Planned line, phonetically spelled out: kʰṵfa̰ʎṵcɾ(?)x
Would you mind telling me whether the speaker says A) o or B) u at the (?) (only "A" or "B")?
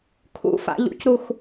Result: B